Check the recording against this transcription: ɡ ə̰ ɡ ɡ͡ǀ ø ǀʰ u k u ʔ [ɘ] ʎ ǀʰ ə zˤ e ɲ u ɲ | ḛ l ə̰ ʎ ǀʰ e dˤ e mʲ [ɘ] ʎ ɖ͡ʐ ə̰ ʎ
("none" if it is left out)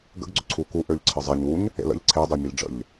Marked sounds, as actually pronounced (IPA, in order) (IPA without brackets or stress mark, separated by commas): ø, ɘ